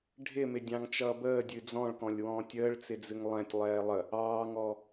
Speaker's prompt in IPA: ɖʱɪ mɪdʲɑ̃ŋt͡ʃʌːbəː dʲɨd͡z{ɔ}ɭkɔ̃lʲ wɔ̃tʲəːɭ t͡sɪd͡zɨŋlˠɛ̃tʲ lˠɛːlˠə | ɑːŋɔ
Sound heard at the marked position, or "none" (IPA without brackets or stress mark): ɔ̃